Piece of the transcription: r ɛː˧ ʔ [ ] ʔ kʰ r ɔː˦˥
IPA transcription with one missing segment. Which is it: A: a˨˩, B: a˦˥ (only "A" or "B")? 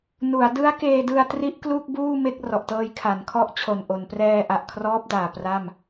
A